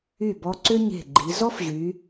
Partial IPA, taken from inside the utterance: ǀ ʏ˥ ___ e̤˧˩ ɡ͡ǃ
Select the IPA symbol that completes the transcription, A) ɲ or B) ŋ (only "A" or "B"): A